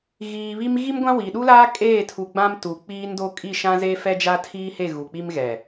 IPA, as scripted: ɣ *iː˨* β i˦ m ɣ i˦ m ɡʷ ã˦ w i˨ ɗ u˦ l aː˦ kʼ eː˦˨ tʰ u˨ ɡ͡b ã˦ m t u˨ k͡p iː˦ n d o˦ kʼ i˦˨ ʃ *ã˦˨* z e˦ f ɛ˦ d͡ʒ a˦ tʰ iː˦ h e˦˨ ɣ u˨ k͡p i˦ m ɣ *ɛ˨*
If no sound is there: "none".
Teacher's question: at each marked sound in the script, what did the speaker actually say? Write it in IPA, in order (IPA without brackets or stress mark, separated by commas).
iː˨, ã˦, ɛ˨